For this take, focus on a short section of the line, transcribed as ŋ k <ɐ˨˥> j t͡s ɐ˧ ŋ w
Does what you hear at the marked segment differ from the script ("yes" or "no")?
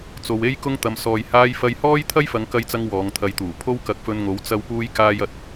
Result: yes